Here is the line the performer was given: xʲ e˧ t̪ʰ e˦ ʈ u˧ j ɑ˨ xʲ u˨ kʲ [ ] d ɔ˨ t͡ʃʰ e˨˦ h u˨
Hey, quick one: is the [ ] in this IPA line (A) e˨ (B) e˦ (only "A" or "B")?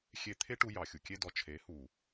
B